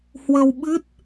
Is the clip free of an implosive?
no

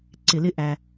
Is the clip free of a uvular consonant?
yes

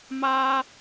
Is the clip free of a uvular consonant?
yes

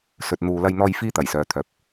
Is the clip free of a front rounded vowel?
no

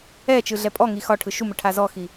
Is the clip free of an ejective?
no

